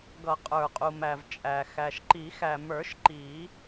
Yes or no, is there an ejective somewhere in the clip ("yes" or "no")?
yes